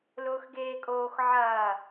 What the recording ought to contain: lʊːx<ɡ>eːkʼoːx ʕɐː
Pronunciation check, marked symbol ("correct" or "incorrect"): correct